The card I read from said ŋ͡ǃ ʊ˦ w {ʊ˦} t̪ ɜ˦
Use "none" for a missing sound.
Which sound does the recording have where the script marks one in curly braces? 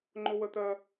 ə˦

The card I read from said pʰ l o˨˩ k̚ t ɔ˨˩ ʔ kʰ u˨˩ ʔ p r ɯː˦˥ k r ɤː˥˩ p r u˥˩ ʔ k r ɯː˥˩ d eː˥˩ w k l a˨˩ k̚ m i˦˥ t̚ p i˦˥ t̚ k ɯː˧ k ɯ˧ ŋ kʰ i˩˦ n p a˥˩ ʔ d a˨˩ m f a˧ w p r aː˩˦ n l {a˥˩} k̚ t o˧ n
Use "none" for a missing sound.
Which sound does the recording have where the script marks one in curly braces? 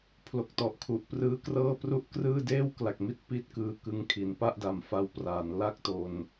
a˥˩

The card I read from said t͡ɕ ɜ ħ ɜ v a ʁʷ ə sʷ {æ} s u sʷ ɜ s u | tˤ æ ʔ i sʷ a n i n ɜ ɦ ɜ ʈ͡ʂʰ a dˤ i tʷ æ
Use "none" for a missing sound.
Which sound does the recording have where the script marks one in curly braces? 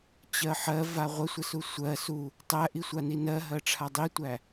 ə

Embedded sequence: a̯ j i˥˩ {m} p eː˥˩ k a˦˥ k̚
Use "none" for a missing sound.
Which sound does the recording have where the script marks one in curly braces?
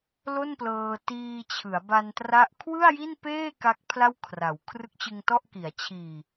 n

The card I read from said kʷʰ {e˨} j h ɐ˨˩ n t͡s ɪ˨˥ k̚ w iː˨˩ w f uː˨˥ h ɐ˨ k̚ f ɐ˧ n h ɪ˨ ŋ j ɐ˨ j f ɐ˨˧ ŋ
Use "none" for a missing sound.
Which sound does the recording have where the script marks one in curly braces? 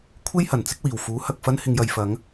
e˥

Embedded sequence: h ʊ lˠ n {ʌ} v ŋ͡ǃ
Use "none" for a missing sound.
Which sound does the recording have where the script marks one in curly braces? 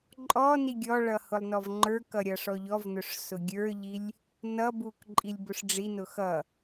ɔ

